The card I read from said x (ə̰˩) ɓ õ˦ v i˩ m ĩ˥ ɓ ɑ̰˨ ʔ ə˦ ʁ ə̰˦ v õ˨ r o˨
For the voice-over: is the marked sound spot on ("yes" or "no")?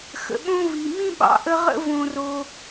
yes